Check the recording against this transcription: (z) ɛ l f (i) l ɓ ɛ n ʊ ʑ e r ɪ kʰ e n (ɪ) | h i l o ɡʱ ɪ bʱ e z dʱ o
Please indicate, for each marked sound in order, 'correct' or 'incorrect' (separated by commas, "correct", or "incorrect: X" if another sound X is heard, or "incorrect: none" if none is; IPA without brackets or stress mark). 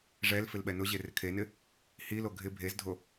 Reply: incorrect: ʐ, incorrect: ɪ, correct